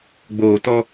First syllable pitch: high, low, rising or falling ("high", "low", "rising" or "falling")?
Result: low